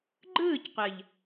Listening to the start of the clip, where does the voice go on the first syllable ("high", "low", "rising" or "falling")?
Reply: falling